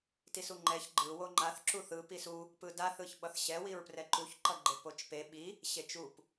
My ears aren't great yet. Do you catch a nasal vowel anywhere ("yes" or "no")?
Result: no